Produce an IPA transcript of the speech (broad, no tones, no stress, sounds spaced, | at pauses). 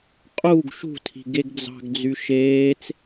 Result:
qʼ u ɡ ʃ ṳ tʰ i̤ ɡ e ɡ d͡z ɑ̤ ɡ d͡z y ʃ eː t͡s